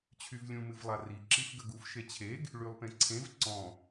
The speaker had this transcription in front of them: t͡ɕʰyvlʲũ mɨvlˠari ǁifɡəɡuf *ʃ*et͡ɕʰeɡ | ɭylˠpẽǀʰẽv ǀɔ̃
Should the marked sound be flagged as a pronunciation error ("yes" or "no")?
no